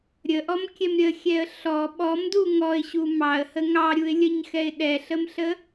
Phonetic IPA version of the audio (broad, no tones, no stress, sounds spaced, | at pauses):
ɾʲ ə ʔ ɔ m kʲ ɛ m ɾʲ ə xʲ ɛ ə̯ ɬ ɔ ɓ ɔ m d u ŋ ɔ ɪ̯ ɕ u m ɑ ə̯ h ə ŋ ɑ ɾʲ u ɪ̯ lʲ ə ɲ x ɛ ɪ̯ ɗ ɛ ɬ ə m ɬ ə